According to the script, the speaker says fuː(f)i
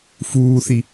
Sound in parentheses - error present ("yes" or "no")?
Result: yes